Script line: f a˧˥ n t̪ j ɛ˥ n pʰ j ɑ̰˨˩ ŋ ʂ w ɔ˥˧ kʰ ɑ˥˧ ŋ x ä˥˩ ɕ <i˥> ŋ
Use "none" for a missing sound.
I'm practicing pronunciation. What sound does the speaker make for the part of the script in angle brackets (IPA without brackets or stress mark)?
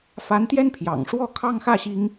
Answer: i˥